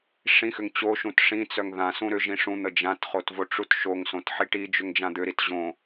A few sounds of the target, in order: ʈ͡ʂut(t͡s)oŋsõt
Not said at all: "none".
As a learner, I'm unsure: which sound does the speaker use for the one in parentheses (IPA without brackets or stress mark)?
ʃ